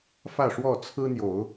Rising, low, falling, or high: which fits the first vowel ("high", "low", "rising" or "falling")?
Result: falling